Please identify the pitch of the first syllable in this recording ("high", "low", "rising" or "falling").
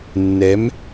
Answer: rising